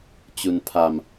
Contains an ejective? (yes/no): no